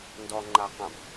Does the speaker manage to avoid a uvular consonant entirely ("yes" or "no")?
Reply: no